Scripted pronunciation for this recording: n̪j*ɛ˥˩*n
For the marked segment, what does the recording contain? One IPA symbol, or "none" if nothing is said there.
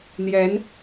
ɛ˧˥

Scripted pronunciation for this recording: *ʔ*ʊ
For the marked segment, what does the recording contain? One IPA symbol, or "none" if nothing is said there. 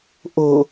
ʔ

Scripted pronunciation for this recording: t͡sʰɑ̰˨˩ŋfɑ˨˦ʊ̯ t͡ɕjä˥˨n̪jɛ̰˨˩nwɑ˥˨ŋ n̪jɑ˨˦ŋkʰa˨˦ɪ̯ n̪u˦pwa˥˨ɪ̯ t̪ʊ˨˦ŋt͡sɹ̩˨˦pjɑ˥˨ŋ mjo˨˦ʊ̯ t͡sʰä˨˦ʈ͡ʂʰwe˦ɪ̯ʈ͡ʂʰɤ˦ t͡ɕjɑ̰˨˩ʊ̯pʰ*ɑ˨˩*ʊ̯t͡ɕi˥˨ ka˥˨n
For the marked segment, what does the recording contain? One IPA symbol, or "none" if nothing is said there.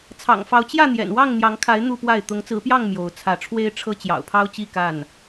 ɑ˦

